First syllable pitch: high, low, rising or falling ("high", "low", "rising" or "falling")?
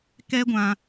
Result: high